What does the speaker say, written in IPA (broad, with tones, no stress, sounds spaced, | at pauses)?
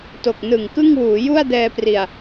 t o˨˩ k̚ n ɯ˨˩ ŋ k ɯ˥˩ ŋ w uː˩˦ j u˥˩ a̯ d ɛː˧ p r i˨˩ a̯